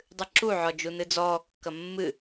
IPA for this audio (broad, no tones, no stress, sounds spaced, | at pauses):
dˤ ɨ ǁ u ʕ ɔ d͡ʒ u n ɨ d͡z ɔː kː ɐ mː ɨ